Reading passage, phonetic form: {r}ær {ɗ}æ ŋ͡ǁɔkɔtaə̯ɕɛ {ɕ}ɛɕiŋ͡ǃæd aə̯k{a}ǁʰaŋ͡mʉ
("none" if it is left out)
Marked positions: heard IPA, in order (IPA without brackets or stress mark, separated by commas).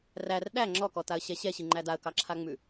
r, ɗ, ɕ, ɑ